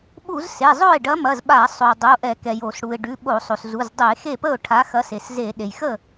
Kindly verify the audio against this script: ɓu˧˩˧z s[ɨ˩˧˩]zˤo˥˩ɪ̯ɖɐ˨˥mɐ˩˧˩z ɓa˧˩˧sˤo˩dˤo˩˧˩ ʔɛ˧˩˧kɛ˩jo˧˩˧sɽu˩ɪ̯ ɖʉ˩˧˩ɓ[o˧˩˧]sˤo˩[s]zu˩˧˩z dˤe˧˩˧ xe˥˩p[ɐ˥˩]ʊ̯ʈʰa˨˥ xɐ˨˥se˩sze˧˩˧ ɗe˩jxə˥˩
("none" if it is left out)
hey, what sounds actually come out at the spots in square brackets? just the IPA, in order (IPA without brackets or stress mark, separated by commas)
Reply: e˩˧˩, o˧˩˧, s, ə˥˩